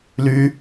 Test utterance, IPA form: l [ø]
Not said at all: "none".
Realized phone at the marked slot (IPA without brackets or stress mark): ʉ